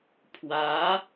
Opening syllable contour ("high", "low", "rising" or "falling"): rising